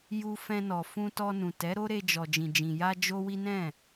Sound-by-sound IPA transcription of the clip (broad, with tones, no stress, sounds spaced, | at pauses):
j u˧ f ɛ̃˧ n ɔ˨ f ũ˧ t ɔ˧ n ũ˨ t ɛ˨˦ ɾ o˦ ɾ e˧ d͡ʒ ɔ˨ d͡ʒ ĩ˨ d͡ʒ ĩ˨ j a˧ d͡ʒ o˦ w i˦ n ɛ̃˦˨